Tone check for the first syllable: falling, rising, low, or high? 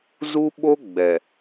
high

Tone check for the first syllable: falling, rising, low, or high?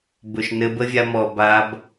low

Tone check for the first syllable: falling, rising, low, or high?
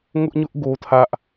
high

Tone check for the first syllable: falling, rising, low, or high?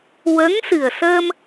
rising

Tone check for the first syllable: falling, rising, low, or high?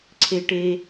high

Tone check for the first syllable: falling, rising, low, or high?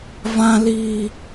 high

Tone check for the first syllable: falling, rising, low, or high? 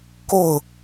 falling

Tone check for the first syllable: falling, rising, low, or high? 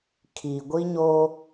low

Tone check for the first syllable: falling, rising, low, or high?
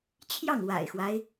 falling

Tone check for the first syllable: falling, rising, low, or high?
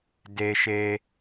high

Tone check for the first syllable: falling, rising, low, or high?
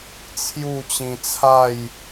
falling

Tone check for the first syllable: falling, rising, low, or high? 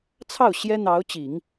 falling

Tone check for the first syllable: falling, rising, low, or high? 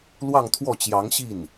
falling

